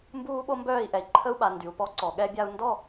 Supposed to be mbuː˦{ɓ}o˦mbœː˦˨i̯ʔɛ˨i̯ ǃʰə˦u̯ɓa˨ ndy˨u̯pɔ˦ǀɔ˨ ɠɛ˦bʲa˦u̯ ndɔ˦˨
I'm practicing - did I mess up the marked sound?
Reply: no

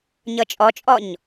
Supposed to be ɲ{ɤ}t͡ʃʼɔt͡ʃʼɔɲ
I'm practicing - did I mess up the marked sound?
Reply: no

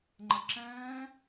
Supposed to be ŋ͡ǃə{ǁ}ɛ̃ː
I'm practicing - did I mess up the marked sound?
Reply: no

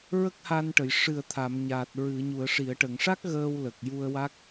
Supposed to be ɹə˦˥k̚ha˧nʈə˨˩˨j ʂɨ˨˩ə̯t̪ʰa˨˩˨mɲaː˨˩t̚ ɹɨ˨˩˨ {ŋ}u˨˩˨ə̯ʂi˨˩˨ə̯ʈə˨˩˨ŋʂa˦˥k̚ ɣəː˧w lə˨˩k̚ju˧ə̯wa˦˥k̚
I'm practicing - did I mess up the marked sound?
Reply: yes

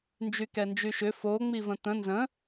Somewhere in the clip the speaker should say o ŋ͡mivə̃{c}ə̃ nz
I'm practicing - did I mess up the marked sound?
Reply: yes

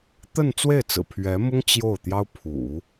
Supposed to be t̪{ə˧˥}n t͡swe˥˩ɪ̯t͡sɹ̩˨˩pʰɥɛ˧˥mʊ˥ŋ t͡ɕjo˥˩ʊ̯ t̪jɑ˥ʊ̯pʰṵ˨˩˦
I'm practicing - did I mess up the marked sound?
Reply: yes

